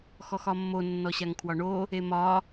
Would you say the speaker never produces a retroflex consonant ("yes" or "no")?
no